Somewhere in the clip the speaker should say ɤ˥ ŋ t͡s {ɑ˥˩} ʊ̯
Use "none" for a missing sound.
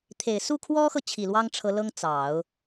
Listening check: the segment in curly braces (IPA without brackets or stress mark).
ɑ˨˩˦